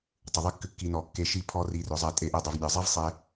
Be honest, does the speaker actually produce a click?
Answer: no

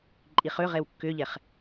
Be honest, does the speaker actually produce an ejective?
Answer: yes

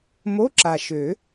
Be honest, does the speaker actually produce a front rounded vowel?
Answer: yes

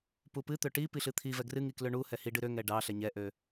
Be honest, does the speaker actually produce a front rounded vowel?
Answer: yes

